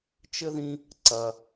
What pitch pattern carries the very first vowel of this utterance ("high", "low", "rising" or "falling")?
high